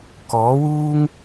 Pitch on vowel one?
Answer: rising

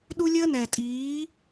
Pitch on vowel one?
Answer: high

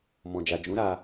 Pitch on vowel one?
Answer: low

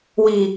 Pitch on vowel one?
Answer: low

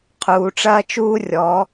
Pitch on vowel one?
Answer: low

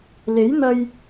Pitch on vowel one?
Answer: rising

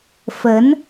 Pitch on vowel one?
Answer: rising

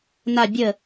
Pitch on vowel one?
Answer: low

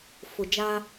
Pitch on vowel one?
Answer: low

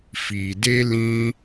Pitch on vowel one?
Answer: low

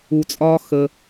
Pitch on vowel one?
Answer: low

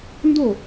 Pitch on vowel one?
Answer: falling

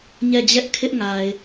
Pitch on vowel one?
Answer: falling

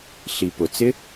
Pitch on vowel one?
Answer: low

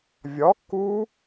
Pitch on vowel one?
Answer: rising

